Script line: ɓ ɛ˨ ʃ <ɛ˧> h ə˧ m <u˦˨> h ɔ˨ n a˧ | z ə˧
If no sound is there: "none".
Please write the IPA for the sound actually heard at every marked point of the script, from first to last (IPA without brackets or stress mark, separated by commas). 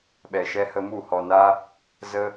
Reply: ɛ˧, u˦˨